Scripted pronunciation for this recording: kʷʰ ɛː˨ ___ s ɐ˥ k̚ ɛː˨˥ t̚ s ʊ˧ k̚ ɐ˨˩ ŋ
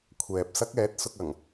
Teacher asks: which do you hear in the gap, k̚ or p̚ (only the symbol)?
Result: p̚